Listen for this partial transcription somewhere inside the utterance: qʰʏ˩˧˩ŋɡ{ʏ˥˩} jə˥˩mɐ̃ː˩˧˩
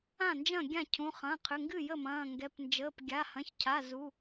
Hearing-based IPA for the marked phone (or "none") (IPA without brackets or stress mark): ɨ˥˩